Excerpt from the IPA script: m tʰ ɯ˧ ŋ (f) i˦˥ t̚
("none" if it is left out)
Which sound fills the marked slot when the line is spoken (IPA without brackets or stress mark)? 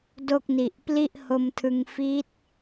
f